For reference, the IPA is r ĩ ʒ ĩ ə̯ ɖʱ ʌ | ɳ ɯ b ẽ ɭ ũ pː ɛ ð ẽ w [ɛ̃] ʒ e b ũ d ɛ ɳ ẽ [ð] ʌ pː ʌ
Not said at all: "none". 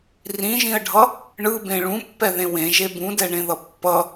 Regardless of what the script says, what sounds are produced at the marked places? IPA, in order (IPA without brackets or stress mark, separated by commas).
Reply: ẽ, ð